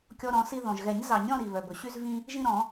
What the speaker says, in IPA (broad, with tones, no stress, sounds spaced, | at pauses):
kʲ ɔ˧ ɾ ɔ̃˨˩˦ s i˧ ð ɔ̃˩ ʒ ɣ ɛ˨˩˦ ɲ z ɑ˨˩˦ ɲ ɾʲ ɔ̃˥˧ ɾ i˩ β œ˩ b ɵ˩ ɕ y˥˧ z v ĩ˧ | ʒ ĩ˥˧ ɾ ɔ̃˨˩˦